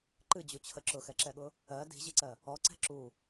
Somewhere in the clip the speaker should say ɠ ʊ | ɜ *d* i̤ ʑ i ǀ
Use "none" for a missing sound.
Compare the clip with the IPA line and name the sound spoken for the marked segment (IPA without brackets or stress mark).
d